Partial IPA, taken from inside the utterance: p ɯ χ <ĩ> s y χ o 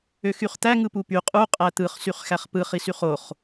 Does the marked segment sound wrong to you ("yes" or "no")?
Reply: yes